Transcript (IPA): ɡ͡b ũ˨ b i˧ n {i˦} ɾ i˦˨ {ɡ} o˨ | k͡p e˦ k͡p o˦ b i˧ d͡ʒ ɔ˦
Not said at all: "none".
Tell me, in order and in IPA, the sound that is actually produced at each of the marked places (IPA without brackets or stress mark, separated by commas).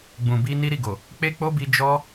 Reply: i˦, ɡ